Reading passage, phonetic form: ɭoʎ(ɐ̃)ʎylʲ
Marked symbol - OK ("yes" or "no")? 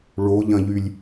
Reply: yes